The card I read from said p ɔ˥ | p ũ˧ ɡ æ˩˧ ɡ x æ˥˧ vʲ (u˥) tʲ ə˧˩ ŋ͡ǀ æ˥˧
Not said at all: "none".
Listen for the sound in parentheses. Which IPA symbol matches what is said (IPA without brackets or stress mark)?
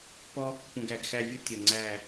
ʊ˥